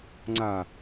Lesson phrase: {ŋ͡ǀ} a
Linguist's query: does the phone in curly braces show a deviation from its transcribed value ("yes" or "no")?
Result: no